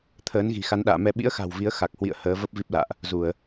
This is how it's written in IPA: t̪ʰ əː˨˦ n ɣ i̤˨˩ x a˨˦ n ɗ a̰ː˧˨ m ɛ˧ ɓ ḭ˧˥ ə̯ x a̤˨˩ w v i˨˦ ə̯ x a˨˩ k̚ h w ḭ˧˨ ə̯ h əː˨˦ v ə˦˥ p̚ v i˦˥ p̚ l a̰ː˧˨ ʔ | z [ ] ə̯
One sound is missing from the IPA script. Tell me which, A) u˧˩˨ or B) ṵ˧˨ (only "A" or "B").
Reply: A